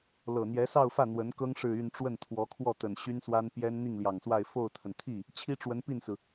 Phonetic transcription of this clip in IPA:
l ɤ˨˩ n̪ j ɛ˧˥ s ɑ˥˧ ʊ̯ f ä˥˩ n̪ w ə˧˥ n k ɤ˥ ŋ ʂ ɻ̩˥˧ y˥˧ n ʈ͡ʂ w ə˥˩ n t̪ʰ w ɔ˧˥ kʰ w ɔ˥˩ t̪ ə˨˩ n ɕ y˥ n s w a˥ n p j ɛ˥ n n̪ i˥˩ ŋ l j ɑ˨˩ ŋ s w a˥˧ ɪ̯ f o˥˩ ʊ̯ t̪ʰ ə˩ n t̪ʰ i˥˩ | t͡ɕʰ i˥ ʈ͡ʂ w ə˧˥ n p i˥˩ n s ɹ̩˩

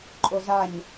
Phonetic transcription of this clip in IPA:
ǃʼ o z a ɲ

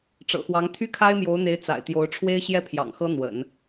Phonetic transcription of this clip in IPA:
ʈ͡ʂ ɤ̰˨˩ x w ɑ˧˥ ŋ t̪ʰ y˥ kʰ a˥ ɪ̯ m j o˧˥ ʊ̯ n̪ e˧˥ ɪ̯ t͡s a̰˨˩ ɪ̯ t̪ j o˧˥ ʊ̯ ʈ͡ʂʰ w e˥ ɪ̯ ɕ j ɛ˥ pʰ j ɑ̰˨˩ ŋ x ɤ˥ n̪ w ə̰˨˩˦ n

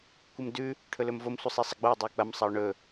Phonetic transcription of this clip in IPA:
kʷ ɨ m d ʉ | ʈʰ ɵ l ɵ m v o m sʷ ɨ sˤ i sˤ ɐ ɡ͡b o e̯ dˤ i e̯ k͡p ɐ m sˤ ɐ o̯ ɳ ɵ

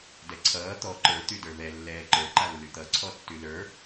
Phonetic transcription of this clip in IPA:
d ɛ ǀʰ ʌː t̪ ɔ ǃ ə˞ t̪ y d ə˞ β ɛ lː ɛː ǃ ə˞ ǃ a lː y t̪ ʌ ǀʰ ɔ tː y l ə˞

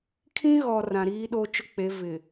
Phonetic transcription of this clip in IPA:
kʰ ĩ˦ ɣ ɔ˨ r ã˨ ɾ iː˦ ɗ o˦ t͡ʃ ʊ˦ k͡p e˨˦ v ɪ˨

